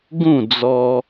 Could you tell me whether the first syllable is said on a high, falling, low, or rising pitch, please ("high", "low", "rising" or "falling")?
falling